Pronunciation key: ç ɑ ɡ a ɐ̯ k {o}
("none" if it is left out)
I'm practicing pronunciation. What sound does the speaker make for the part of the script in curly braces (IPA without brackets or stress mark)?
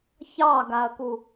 u